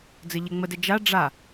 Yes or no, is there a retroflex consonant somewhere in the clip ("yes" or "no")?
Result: yes